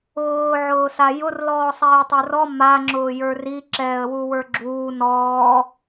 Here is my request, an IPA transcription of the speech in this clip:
ʊː ʕ ʊː s a j ʊ r l ɔː sˤ ɛː tˤ ə˞ r ɔ m a ŋ͡ǁ ʊː j ə˞ r i ǁ ɛː ə̯ w u w ə˞ ɡ͡ǁ uː n ɔː

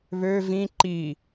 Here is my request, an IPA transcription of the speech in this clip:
β ø v ĩ ǃ i

